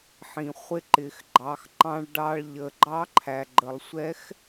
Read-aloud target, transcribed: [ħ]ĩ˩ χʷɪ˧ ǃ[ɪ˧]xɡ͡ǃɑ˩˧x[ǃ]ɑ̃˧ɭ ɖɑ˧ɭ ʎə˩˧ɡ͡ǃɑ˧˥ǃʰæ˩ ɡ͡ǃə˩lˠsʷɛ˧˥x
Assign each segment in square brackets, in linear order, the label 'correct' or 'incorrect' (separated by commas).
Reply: correct, incorrect, correct